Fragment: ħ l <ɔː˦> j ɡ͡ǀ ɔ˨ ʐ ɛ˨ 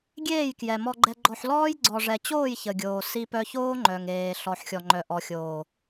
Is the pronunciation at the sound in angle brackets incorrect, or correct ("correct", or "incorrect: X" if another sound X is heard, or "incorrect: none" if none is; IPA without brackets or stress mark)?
correct